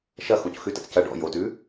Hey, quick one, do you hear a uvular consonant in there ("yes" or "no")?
no